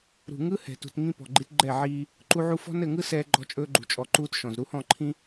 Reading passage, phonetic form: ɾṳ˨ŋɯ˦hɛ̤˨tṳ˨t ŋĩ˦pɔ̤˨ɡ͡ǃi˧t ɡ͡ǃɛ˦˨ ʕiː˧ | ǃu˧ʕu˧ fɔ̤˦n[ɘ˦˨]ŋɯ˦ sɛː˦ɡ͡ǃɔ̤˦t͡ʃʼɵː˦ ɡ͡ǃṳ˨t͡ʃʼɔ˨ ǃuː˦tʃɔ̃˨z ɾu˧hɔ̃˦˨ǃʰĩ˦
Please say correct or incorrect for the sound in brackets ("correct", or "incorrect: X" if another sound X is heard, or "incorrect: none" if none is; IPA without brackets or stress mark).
correct